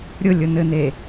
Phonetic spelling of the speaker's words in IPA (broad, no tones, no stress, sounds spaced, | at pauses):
ɾʲ ʊ lʲ ʊ n ɘ n e